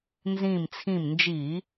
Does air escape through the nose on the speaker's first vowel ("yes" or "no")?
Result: yes